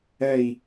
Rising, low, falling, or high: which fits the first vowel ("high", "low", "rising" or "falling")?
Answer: falling